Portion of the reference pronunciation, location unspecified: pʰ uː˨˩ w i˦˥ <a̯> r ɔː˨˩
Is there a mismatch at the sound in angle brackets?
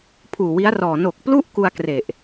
no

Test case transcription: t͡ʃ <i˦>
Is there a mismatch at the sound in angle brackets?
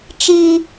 no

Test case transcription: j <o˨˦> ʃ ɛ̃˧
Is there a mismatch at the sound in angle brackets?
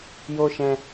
yes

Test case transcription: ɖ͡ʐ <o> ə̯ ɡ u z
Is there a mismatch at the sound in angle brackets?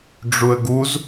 yes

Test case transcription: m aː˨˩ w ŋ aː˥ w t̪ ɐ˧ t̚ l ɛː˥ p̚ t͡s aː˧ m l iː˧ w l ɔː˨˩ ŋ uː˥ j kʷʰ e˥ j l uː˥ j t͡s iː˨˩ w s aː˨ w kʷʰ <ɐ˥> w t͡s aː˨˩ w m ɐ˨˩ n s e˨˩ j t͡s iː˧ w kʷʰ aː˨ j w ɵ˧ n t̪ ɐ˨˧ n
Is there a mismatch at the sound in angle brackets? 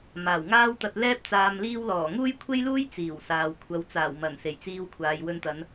yes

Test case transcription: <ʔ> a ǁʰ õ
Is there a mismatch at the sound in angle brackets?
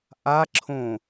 no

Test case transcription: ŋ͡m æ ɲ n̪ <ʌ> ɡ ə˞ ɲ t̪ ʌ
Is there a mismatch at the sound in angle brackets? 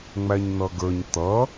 no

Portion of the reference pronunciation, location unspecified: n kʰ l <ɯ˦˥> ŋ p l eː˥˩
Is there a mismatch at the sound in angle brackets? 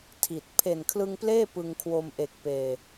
yes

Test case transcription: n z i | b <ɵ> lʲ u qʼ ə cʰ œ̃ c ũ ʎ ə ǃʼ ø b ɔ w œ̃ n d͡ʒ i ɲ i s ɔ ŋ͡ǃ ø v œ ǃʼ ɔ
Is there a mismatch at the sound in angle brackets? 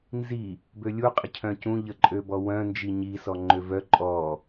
yes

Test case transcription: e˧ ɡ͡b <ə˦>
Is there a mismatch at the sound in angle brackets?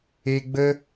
no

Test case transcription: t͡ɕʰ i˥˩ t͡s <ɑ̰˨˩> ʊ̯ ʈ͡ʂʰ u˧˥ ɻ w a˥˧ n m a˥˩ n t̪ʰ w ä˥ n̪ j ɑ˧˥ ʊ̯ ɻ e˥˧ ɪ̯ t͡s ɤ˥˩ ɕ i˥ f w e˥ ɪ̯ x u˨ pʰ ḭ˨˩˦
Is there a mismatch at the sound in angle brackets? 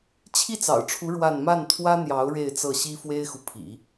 no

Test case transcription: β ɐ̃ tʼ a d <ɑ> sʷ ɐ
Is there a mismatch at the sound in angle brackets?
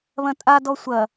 yes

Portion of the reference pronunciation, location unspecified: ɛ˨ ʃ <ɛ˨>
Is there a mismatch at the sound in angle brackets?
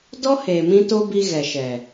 no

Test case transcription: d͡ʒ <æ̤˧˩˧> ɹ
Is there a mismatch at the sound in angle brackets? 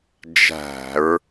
no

